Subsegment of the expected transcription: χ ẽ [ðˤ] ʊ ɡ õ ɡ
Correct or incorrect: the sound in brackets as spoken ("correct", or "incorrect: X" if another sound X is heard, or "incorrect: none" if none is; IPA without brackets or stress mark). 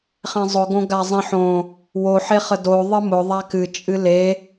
incorrect: zˤ